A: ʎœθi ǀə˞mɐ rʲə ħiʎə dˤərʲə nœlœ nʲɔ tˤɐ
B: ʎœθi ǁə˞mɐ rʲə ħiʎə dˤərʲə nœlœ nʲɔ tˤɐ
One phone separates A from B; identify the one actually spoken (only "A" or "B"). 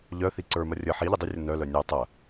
A